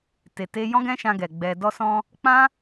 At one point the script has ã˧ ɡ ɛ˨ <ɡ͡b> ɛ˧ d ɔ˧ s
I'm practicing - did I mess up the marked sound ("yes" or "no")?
no